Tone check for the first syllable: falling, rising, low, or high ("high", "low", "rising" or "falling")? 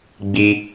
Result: high